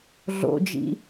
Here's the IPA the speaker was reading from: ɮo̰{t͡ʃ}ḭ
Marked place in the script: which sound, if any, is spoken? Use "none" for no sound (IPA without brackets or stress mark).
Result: d͡ʒ